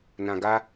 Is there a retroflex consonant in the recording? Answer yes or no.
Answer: no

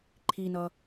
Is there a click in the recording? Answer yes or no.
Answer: yes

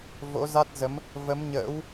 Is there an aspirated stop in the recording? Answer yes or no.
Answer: no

